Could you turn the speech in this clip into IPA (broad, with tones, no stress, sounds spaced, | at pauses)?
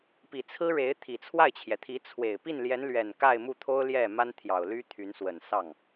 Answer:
p i˨˩ t͡sʰ ɹ̩˥ ɻ e˧˥ ɪ̯ t̪ʰ i˨˩ t͡sʰ w a˥˩ ɪ̯ t͡ɕʰ j ɛ˩ t̪ʰ i˧˥ t͡sʰ w e˨˩ ɪ̯ p i˥˩ n l j ɛ˧˥ n l ɥ ɛ˨˩ n k a˥˧ ɪ̯ m u˥˩ t̪ʰ o˥ ʊ̯ l j ɛ˥˩ m a˥ n t̪ʰ j ɑ˨˩ ʊ̯ l y˥ t̪ʰ y˧˥ n s w ə˨˩ n s ɑ˥˩ ŋ